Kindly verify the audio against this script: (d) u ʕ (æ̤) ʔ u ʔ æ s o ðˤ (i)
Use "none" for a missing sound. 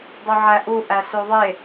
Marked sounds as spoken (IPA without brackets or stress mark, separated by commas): dˤ, æ, e